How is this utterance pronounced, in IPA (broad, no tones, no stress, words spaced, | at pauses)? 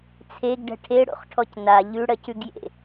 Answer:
t͡sʰeɡɖɛ̤ ʈʰeɽo̰χʈʰɔc na ʎʉɽɜcʉɡjḛ